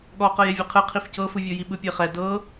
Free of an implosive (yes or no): no